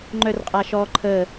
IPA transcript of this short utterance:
ŋ͡ǃ œ r qʼ a ʃ ɔ ǃʰ ə

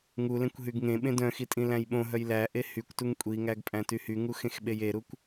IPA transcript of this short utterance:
ŋ u l ẽ kʷ ɦ y ɡ ŋ ẽ ɓ ẽ d œ̃ x i tʼ ĩ l æ̃ j ɓ õ ɦ œ j l æ ʔ e h y kʷ t u ŋ kʷʼ i ŋ æ ɡ pʼ æ̃ t y h y ŋ u x ẽ x ɓ e j e ɾ u kʷ

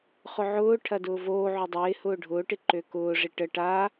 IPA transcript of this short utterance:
χ ʊ ʕ ʊː ʈʰ ɐ d ʊː v oː ʕ ʏ dˤ ɪː h ʊː ɖʱ ʊː ʈ ɪ ǃ ø k ʊː ʐ ɪ ʈ ə ʈ a

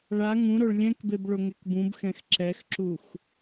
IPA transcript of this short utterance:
ɭ a ŋ ũ ɾ o ɭ lʲ ɛ̃ k b e b ɭ o ŋ e k b ũ b x ɛ̃ x ǁ ɛ x ǁ u x

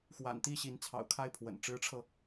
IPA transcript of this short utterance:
x w a̰˨˩ n t̪ i˥˩ ɕ i˧˥ n t͡sʰ ɑ̰˨˩ ʊ̯ kʰ a˥˩ ɪ̯ pʰ w ə̰˨˩ n ʈ͡ʂ ɻ̩˧˥ ʈ͡ʂʰ ɤ˧

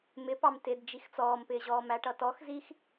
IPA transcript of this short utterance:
m ɪ p ɑ m t ɪ d d͡ʒ i x t͡s ɔː m p ɪː ʑ ɔː m æ ʈ ʌ t ɔ x z i x

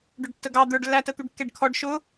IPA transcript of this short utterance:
ɖ ʊ ɖ tː ə ɡ ɑ d̪ ə˞ ɖ lː æ t ə t̪ u ɖ kː ɛ ɖ kʰ ɔ ɖ ʃ ʊ

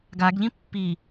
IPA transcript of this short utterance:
ɡ a ɡ ʎ ĩ pː i

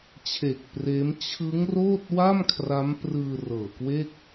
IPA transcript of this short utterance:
t͡ɕʰ e˨˩ k̚ p r eː˦˥ m t͡ɕʰ ɯ˦˥ ŋ r oː˥˩ t̚ w a˥˩ m kʰ r a˦˥ m p r ɯː˧ r ɤː˨˩ k w e˥˩ k̚

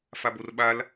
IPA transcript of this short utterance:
f a b o r ɓ a l

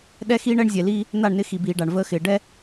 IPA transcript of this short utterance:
ɗ ɛ˦ x iː˦ ɳ ɛ˦ ɳ zʲ ɛ˨ l iː˦ | n̪ a˦˨ ɳ n ɪ˦ x i˨ b iː˨ ɖ a˨ ɳ v əː˦ x ɪː˨ ɖ ɛ˦

